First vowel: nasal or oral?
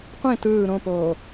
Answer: nasal